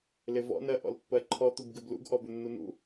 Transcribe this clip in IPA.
l ɪ v ɔ̰ n ɜ ʔ ɔ̰ l pː ɜ ǃʰ ɔ t̪ u b ɡ ɪ b l ṵ ɡ ʔ ɔ b ʏ nː u n ṵ

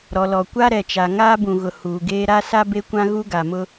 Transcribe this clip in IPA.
ɾ ɔ˨ l ɔ˨ kʷ a˦ ɾ ɛ˨ t͡ʃ a˨ ŋ aː˦ b ũ˨ ɣ ʊ˨ h uː˨ ɡ eː˦ ɾ a˦ s a˦ b e˦ kʷ ã˦ ɣ u˦ ɡ a˨ m ʊ˦

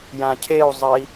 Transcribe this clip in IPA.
j ã cʰ e u̯ zˤ ɜ i̯

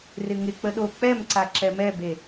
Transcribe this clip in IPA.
r ɪ ŋ ɪ k͡p ə ɗ o k͡p ɛ m ǀ a ǁ ɛ m ɛ b e

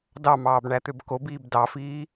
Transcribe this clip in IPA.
d ɑ m ɑː b ɳ æ t̪ ø b k o b iː b d ɑ f iː

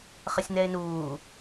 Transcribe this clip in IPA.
χ ə sʲ n ɛ ɪ̯ n uː

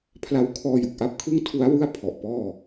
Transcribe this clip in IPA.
pʰ l a˧ w kʰ ɔː˧ j u˨˩ k̚ ʔ a˦˥ p̚ kʰ ɯ˥˩ ŋ tʰ u˦˥ a̯ w ɯ˥˩ a̯ pʰ ɔ˨˩ ʔ p ɔː˥˩

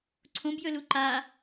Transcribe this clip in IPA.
ǀʰ õ b j ɵ l u ǃ a

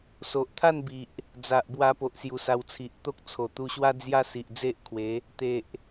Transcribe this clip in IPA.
s o˨ ʔ t̪ʰ a˥˧ n b i˨ ʔ | d͡z a˨ ʔ b w a˧ p o˨ ʔ s j u˨˩ s a˧ w t͡sʰ i˨ ʔ t̪ o˦ k̚ t͡sʰ o˨˩ t̪ u˧ ɕ w a˦ d͡z j a˦ s i˨ ʔ d͡z e˦ ʔ kʰ w e˨˦ | t̪ e˨ ʔ

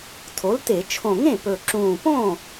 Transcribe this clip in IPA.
tʰ o˩˥ l t e˧˩˧ t͡ʃʰ õ˨˩ ŋ ẽ˥˩ p ɵ˨˩ ǁ ũː˨˩ p õ˥˩

